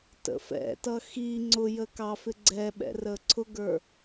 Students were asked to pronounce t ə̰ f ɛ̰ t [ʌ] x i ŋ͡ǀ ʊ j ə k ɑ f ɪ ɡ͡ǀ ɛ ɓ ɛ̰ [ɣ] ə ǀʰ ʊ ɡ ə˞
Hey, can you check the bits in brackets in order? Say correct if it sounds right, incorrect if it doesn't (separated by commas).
correct, incorrect